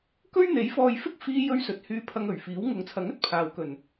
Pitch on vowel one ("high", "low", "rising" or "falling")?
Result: high